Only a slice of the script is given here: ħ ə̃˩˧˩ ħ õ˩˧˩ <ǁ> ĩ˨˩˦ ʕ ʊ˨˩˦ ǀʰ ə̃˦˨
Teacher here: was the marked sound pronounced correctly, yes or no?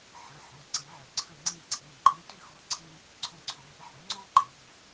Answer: no